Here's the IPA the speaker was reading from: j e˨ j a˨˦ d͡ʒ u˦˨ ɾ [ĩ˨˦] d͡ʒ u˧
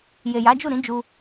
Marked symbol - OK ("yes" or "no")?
yes